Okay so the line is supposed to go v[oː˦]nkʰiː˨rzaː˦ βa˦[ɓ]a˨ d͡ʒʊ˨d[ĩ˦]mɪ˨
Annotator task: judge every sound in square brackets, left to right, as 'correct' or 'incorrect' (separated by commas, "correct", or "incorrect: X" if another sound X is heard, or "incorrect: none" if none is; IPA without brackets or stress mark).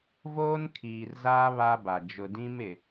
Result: correct, incorrect: b, correct